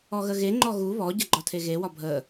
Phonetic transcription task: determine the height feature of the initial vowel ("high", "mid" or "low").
mid